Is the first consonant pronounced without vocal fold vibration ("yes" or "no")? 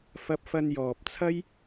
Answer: yes